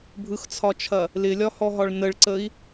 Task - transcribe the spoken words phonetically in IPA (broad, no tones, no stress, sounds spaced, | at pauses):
bʱ ɯ x t͡sʰ ɒ t͡ʃʰ ɐ | l ɪ lʲ ɒ h ɔ ɦ ɒ ɭ n ə ɭ ǀ ə i̯